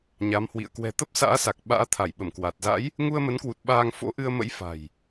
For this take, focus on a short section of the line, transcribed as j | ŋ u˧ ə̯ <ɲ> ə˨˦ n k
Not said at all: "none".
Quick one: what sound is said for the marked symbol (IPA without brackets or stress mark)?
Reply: m